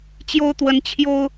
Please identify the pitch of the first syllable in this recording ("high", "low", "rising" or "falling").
high